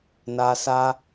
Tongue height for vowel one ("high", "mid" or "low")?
low